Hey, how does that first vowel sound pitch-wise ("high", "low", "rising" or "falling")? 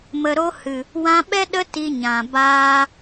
low